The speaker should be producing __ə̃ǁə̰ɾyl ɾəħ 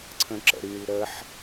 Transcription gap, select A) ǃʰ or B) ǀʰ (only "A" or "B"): B